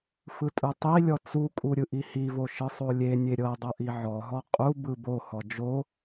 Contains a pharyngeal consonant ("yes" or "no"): yes